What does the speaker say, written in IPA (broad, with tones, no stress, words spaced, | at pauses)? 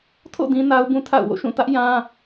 tʰo̰˦˨ dĩ˦na˦ʊ̯bũ˦tʰa̰˦˨ʊ̯ wo̰˦˨ʃũ˦˨tä˦ʔ jã˦